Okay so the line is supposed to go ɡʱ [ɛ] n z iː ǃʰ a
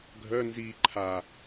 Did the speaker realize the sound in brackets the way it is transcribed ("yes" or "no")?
no